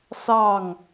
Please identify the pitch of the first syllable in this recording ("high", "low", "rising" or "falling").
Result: falling